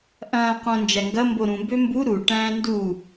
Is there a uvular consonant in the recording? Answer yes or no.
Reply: yes